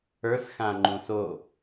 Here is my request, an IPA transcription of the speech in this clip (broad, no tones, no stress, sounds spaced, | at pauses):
ə˞ s x ã ŋ͡ǃ ũ s o